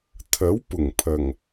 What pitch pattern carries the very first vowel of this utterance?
rising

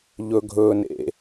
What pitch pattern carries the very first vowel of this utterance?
low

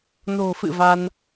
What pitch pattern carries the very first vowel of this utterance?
low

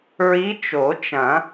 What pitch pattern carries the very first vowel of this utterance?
rising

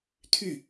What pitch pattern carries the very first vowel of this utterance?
falling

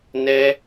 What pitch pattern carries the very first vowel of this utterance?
high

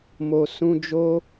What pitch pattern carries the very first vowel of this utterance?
low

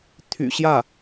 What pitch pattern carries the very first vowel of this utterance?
low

